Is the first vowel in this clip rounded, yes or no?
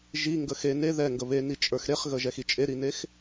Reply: no